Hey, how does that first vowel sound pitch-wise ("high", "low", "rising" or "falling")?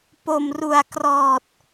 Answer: low